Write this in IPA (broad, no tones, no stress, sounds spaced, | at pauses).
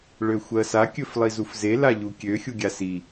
ɭ ø xʷ ɜ s a kʲ ɵ f lˠ i z u f z e l a ʎ u kʲ ø xʲ u ɡʲ a s i